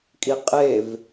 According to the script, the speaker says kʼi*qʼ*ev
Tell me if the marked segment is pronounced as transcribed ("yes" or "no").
yes